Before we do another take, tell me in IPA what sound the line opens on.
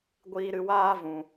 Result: ɡʷ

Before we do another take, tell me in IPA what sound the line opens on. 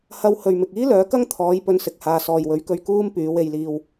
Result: h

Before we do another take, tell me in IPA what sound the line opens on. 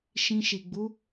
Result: ʃ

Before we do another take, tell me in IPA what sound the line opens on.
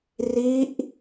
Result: r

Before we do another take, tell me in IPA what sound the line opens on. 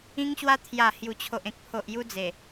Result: ĩ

